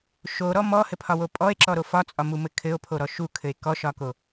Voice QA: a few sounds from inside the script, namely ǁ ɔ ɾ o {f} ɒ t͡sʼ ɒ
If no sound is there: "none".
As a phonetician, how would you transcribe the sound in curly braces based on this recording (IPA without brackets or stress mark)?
f